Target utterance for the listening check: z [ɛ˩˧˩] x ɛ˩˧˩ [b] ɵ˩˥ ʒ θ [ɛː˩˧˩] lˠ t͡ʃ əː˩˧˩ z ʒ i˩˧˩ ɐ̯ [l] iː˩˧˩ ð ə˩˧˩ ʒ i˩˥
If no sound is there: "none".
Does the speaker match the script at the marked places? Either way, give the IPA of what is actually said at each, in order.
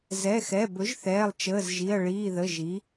ɛ˩˧˩, b, ɛː˩˧˩, ɭ

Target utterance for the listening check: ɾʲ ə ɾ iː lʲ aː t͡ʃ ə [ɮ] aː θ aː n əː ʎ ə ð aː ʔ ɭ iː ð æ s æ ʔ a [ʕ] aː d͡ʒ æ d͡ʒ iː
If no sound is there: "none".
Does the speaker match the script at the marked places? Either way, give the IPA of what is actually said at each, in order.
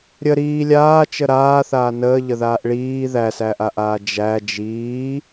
ɾ, ʔ

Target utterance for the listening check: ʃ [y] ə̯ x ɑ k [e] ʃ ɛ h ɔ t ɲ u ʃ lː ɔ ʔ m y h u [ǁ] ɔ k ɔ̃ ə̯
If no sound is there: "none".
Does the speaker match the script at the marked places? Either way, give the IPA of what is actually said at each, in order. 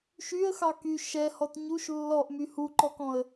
y, y, ǃ

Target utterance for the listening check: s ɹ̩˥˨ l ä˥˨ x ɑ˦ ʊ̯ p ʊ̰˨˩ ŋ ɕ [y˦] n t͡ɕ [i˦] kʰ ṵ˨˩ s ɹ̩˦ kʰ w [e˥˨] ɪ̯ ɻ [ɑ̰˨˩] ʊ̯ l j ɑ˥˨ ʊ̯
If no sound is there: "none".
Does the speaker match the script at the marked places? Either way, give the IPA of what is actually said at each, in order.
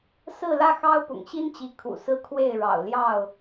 i˦, i˨˦, e˥˨, ɑ̰˨˩

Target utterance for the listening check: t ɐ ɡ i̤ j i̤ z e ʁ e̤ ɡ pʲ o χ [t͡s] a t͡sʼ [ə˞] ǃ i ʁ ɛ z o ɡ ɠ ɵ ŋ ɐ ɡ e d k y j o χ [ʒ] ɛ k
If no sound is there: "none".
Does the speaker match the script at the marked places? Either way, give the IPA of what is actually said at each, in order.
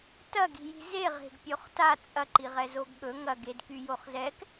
t, ɐ, z

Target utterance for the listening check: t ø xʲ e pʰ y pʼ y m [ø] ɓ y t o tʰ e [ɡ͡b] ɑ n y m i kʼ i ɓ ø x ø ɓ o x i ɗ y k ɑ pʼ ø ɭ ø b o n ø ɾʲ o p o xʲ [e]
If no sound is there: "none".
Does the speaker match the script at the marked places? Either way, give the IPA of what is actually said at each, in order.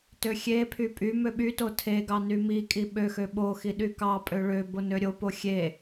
ø, ɡ, e

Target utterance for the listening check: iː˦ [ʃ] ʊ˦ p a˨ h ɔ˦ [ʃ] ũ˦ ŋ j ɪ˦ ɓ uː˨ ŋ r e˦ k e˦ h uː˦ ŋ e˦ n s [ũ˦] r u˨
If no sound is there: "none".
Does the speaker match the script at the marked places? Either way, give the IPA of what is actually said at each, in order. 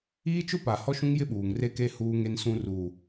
t͡ʃ, ʃ, ũ˦

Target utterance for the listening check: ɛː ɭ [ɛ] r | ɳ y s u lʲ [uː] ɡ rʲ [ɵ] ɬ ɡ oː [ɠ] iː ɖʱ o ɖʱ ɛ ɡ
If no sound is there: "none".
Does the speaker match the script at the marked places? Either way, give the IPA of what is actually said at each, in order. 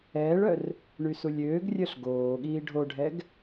œ, øː, œ, ɠ

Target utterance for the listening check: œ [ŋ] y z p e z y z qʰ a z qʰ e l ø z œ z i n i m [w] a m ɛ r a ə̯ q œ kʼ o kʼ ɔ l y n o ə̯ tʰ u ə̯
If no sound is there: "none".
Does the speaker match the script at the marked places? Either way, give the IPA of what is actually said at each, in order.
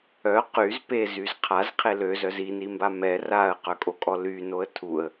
q, b

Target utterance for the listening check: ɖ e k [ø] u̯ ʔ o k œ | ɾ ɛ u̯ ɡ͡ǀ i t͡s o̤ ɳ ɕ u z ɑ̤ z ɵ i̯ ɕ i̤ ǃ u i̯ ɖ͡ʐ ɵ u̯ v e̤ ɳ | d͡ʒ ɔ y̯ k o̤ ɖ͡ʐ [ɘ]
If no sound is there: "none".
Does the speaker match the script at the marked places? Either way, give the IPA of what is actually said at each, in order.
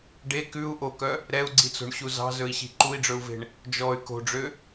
ʉ, ø

